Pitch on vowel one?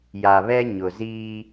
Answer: low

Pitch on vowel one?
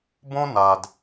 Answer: high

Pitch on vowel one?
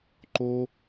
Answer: high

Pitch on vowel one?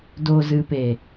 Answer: low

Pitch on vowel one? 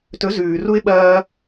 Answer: rising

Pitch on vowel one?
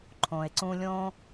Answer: low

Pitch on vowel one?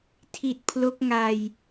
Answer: low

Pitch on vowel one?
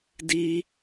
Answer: high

